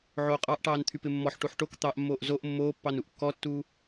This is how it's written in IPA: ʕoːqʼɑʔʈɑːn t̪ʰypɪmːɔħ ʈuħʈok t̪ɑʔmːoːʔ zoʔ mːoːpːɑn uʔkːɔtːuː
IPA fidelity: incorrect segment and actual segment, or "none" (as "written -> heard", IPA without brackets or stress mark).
none